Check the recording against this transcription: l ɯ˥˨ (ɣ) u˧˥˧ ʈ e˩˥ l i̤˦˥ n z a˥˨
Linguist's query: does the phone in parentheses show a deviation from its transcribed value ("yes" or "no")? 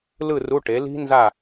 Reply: yes